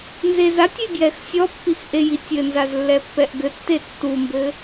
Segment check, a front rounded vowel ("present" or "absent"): absent